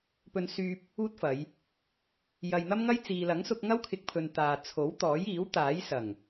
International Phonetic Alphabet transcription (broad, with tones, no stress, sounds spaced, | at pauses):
p ɵ˧ n s yː˧ p̚ | uː˥ t̚ f ɐ˨˧ j | j ɐ˧ j n̪ ɐ˥ m ŋ ɐ˥ j t͡s iː˨ l ɐ˨˥ ŋ s ʊ˧ k̚ ŋ ɐ˥ w kʰ ɪ˧ k̚ pʰ ɵ˨ n t̪ aː˨ t͡sʰ o˨˥ w t̪ ɔː˨˥ j iː˨˥ w t̪ aː˨˥ j s ɐ˨˩ ŋ